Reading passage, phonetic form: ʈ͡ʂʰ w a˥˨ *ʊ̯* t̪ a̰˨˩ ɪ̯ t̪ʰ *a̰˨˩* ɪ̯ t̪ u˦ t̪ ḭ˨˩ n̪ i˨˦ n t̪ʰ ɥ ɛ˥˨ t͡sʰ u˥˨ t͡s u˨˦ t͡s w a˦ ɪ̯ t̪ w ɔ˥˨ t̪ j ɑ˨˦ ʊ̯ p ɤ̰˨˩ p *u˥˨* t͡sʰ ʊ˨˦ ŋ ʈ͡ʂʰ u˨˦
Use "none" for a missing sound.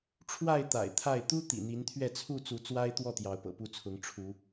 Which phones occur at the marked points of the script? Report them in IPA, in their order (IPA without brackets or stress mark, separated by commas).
ɪ̯, a˥˨, u˥˨